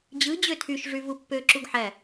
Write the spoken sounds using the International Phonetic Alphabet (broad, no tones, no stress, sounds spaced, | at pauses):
d͡ʑ ɯ d͡ʑ ø tʰ y ʃ ʐ y v u pː ø ǁ u ɡ ħ æ